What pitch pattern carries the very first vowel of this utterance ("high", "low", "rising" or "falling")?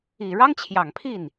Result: low